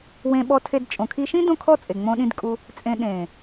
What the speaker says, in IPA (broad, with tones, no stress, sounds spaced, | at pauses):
w ẽ˧ ɓ ɔ˧ tʰ e˧ d t͡ʃʼ õ˨ kʰ i˧ ʃ ĩ˦ d õ˦ kʰ ɔ˦ t͡sʼ e˨ ŋ͡m õ˧ ɗ ĩ˧ d kʼ u˧ | t͡sʼ ẽ˧ ɗ ẽ˨